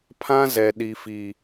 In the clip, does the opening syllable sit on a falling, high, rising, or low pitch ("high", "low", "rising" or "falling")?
high